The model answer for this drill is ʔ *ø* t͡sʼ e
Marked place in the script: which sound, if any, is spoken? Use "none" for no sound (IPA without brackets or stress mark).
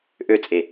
ø